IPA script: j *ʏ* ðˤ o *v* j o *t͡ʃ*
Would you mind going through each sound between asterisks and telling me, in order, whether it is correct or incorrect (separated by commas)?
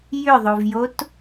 correct, correct, incorrect